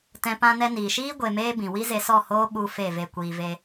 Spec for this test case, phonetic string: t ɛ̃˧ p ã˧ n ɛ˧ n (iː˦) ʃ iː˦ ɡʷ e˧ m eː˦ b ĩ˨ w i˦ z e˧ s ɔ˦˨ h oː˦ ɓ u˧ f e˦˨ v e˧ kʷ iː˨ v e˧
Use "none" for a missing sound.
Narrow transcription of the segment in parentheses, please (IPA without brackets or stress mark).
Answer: iː˨